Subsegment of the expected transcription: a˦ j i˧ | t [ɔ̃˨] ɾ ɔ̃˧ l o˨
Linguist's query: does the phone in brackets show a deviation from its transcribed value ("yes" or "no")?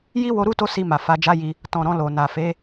no